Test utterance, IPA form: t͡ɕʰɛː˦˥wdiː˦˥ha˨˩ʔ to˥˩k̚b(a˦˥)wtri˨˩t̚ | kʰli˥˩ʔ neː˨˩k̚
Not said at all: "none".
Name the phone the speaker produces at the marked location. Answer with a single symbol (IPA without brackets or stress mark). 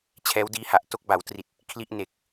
a˩˦